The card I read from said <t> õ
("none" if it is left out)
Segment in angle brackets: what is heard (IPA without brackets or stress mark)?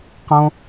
q